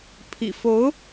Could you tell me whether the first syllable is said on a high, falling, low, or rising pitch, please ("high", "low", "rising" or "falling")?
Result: low